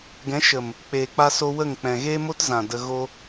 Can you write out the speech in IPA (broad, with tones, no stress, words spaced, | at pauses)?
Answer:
ɡɛ̃˨˦ʃə˨m | k͡peː˨k͡pa˦so˦ wə˦˨ŋk͡pɛ̃˨ ɣeː˦mo˦tzã˨ də˧ ɣo˦